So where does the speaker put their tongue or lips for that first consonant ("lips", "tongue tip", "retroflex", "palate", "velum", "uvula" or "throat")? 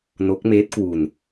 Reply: tongue tip